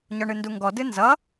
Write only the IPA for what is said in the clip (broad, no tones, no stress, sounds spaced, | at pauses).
ɲ ɔ ɳ ɨ n d u ŋ ɡ ɔ d ɨ n z ʌ